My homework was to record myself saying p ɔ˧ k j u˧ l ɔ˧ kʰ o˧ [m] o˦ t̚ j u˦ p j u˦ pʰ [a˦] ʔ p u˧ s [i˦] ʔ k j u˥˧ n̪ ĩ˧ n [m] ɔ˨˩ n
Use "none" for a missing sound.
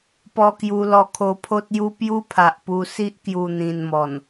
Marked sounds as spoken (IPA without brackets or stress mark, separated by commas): pʰ, a˨, i˦, m